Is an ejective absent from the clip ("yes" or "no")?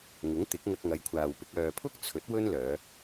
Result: yes